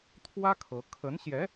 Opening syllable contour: high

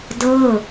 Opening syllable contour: falling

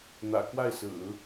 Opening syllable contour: low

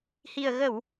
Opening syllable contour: low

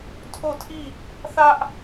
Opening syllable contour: falling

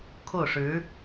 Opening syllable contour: falling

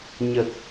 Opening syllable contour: low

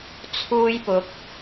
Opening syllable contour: high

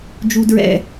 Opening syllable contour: high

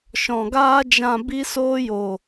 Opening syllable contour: low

